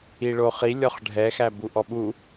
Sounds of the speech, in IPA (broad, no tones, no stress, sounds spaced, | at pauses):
i ɭ o χ i lʲ ɔ χ ɖʱ ɛ x æ b u ʔ ɔ ɓ u